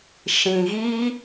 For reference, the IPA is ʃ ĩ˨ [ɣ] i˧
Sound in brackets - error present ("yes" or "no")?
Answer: no